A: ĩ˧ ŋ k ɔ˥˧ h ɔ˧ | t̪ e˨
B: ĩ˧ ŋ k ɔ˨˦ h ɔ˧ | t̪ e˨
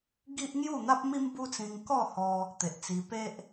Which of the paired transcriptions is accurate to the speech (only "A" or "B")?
A